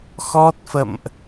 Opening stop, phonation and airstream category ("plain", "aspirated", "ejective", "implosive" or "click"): plain